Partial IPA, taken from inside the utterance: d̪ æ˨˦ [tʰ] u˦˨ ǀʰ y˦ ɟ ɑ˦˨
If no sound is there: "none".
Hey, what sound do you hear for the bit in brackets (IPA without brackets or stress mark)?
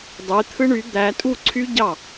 tʼ